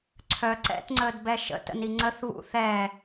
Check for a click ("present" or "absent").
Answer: present